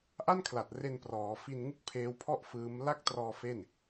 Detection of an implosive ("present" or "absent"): absent